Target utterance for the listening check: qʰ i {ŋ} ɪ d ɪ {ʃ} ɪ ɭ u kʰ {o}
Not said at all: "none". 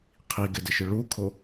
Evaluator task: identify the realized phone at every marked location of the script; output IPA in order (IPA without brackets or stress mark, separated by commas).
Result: ɡ, ʃ, o